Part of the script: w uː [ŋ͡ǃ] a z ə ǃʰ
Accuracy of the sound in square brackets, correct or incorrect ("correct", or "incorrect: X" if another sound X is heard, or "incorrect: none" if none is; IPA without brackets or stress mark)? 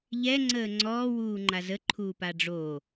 correct